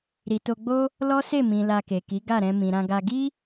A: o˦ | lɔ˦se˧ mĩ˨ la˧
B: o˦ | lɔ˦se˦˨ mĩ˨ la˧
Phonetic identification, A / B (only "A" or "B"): B